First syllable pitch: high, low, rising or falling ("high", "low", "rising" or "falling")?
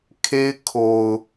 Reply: high